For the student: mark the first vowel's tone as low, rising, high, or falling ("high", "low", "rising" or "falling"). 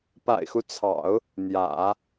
low